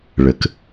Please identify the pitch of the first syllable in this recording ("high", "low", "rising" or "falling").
low